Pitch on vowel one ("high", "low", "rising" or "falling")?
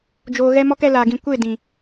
low